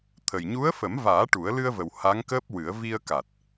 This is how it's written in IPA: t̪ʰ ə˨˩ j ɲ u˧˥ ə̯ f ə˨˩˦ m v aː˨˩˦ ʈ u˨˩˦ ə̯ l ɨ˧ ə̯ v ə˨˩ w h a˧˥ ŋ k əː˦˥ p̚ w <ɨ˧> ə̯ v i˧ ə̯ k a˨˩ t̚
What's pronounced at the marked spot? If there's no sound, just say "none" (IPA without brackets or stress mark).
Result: ɨ˨˩˦